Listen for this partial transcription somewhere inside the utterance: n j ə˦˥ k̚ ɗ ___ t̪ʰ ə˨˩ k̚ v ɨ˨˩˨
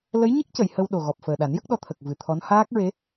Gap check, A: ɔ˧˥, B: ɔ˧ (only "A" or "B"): B